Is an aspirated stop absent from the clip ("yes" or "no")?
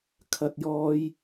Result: no